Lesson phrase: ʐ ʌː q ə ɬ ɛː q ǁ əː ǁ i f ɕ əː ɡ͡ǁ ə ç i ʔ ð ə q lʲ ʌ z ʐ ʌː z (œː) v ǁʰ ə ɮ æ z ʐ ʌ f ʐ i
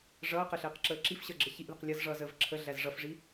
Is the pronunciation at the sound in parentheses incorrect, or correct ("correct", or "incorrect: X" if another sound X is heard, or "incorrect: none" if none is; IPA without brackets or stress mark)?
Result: incorrect: əː